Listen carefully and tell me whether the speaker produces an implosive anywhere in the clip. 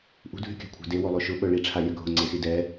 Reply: yes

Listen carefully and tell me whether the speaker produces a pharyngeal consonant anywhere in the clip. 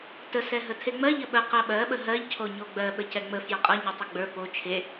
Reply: no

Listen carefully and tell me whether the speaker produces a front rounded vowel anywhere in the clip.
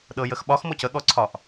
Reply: no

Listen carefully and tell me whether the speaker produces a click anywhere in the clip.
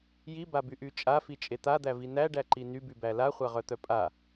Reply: yes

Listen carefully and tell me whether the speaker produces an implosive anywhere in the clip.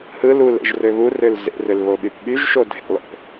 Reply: yes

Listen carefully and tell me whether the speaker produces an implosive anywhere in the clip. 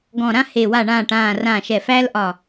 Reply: no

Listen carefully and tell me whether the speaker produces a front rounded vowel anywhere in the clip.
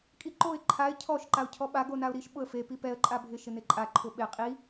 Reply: no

